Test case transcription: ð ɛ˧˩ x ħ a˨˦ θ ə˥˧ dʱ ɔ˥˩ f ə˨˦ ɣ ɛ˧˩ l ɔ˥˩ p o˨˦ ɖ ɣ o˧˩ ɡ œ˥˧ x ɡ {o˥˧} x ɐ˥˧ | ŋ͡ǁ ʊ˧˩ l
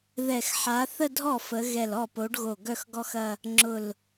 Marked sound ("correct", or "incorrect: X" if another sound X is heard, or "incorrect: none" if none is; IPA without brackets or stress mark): incorrect: ɔ˥˧